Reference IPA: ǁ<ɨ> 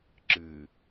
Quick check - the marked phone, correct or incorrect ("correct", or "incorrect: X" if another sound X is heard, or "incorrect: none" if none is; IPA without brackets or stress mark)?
correct